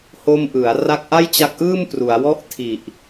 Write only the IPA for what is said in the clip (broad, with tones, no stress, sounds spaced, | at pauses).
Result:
h o˧ m ʔ ɯ˩˦ a̯ r a˦˥ k̚ ʔ a˥˩ j t͡ɕ a˦˥ k̚ ʔ ɯː˥˩ m p r u˩˦ a̯ w ɔ˥˩ ʔ tʰ i˨˩ ʔ